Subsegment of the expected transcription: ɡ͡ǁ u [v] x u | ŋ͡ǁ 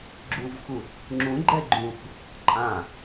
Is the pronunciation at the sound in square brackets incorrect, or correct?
correct